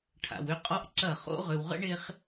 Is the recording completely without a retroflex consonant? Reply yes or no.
no